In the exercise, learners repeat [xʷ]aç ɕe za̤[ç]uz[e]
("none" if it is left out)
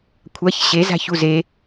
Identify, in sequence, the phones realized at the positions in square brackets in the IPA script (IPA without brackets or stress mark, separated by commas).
kʷʰ, ç, e